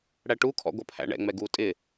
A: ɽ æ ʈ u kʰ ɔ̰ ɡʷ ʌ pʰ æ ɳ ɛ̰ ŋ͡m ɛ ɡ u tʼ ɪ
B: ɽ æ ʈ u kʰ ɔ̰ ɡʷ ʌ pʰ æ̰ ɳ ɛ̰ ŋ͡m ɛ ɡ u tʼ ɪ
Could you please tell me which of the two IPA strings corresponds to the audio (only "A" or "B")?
B